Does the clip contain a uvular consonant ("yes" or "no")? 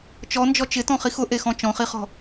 yes